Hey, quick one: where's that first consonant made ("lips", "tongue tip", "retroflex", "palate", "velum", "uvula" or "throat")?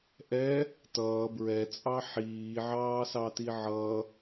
throat